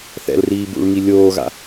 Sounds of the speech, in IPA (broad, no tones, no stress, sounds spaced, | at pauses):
θ ɛ̰ l r iː b ṵ ɭ ŋ i lʲ oː ɣ a̰